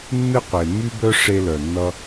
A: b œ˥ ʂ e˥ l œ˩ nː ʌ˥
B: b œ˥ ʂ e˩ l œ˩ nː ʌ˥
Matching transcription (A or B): A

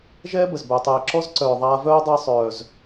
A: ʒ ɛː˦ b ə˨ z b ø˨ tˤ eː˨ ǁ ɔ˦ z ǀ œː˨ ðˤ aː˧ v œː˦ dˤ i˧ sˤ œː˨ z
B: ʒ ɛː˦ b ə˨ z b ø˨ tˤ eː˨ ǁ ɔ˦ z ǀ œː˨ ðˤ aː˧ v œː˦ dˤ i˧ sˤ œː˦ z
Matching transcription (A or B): A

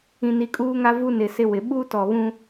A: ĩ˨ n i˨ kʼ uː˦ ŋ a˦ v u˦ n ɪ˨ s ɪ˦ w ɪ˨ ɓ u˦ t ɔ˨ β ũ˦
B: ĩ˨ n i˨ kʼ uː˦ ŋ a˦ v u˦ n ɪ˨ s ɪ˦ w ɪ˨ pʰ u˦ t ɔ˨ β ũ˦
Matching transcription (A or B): A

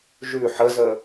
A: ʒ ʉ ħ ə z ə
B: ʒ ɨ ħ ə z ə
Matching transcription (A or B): A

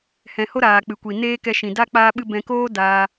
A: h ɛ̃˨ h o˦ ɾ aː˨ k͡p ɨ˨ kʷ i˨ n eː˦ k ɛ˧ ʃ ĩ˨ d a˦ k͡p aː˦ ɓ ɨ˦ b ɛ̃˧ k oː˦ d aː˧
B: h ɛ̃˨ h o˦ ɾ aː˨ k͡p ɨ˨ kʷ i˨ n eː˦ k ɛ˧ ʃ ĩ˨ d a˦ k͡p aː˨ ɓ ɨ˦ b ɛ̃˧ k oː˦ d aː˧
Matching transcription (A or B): A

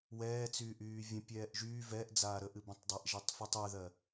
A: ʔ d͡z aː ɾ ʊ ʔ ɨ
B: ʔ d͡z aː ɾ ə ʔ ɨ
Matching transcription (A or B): B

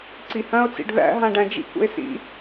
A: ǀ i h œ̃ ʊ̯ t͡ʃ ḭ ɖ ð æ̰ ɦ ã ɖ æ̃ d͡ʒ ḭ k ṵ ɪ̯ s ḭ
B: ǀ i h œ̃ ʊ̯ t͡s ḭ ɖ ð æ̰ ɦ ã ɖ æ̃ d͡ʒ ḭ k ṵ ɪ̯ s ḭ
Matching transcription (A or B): B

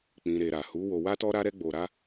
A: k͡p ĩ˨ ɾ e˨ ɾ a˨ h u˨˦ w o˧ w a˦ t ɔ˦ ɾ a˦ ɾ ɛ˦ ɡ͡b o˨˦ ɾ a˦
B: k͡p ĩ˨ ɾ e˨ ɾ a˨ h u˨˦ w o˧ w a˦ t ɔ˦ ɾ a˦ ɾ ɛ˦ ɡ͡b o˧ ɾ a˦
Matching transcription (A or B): B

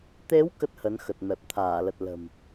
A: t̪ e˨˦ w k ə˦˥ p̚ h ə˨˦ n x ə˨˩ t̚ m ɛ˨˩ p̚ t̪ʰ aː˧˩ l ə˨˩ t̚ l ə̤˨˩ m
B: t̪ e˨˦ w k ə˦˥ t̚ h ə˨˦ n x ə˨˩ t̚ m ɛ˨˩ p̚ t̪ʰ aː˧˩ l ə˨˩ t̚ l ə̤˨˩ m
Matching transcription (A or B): B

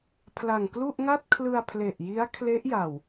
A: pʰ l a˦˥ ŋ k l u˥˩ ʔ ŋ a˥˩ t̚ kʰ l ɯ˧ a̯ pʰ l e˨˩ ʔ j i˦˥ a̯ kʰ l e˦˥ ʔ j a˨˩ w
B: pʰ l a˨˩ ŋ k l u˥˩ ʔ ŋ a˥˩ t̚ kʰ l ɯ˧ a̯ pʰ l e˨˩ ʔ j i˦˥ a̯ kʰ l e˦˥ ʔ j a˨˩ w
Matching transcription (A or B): B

